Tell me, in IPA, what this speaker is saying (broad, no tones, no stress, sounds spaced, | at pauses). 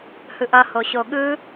h ɯ ʔ ʌ h o ɕ o ɠ ɯ